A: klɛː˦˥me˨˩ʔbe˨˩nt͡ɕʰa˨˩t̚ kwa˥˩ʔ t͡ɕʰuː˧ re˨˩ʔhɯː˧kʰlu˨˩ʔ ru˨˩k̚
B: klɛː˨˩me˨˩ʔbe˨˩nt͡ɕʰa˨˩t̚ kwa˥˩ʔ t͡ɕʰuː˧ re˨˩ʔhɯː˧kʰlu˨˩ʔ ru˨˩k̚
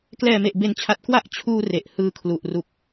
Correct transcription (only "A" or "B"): B